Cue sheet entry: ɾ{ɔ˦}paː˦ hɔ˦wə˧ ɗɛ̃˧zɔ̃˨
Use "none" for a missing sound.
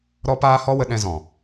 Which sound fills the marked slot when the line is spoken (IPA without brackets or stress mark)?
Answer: ɔ˦